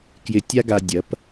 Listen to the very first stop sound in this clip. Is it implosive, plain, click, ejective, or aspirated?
plain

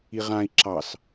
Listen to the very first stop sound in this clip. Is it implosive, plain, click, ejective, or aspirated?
click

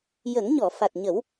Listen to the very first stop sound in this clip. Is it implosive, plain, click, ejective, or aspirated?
plain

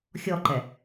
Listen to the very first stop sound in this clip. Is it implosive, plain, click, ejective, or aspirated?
click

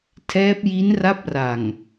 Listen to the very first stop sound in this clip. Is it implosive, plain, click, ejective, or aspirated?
aspirated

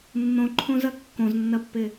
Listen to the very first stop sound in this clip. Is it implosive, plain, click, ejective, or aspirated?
click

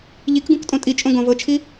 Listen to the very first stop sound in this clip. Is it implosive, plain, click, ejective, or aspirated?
plain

